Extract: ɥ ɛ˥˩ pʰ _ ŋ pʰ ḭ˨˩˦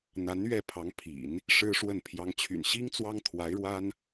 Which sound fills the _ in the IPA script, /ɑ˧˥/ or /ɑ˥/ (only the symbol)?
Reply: ɑ˧˥